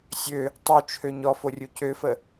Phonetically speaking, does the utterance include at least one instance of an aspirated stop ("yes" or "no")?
yes